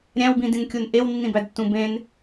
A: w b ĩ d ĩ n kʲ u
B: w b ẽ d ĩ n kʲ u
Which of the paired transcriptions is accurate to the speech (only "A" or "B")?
A